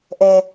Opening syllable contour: low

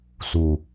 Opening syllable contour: low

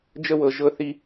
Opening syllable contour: high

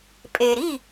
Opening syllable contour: low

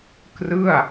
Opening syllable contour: falling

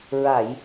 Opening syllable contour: low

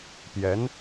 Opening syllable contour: rising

